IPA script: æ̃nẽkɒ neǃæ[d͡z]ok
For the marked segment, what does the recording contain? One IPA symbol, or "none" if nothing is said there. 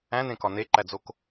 d͡z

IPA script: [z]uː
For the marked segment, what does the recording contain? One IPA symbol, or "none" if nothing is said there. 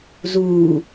z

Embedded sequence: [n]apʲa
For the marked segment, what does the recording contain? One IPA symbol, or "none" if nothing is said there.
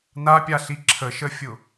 n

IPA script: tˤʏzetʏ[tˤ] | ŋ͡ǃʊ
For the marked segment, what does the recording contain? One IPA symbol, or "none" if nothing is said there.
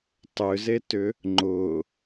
none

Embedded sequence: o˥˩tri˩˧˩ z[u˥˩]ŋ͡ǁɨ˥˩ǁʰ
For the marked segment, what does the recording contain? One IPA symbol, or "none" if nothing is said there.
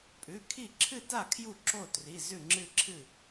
ʉ˥˩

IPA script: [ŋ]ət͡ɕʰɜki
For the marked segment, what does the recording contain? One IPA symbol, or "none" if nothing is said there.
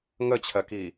ŋ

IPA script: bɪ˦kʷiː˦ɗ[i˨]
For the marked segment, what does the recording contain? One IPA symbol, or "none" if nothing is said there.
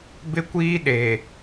e˨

